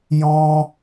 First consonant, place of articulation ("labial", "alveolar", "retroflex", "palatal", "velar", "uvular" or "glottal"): palatal